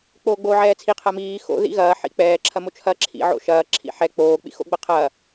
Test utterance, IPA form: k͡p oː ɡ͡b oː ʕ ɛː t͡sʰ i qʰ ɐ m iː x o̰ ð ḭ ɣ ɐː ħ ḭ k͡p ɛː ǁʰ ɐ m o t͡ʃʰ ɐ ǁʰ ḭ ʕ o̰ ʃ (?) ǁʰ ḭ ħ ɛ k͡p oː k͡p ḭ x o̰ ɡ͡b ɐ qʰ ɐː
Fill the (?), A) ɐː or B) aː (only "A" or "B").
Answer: A